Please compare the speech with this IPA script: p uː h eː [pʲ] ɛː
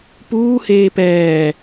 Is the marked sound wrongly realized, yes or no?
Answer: yes